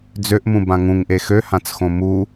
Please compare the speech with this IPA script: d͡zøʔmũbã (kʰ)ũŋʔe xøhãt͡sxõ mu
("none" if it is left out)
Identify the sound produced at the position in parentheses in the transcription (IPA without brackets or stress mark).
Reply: ŋ